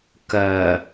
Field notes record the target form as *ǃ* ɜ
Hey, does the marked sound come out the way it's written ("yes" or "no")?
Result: no